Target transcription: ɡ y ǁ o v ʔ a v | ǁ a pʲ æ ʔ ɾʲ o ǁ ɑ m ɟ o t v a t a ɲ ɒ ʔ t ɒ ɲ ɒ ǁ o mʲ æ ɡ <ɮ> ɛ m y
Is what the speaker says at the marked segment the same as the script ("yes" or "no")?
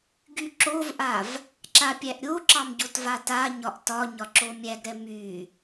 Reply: no